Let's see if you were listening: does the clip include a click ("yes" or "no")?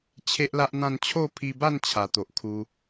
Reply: no